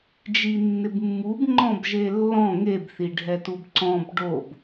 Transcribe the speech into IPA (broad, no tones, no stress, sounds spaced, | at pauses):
d͡ʒ i nː ɪ b mː u b ŋ͡ǃ ɔ̃ b ʒ e lː ɔ̃ ŋ e b θ i ɖʱ ɛ t u b ǀ ɔ̃ b ɖ o b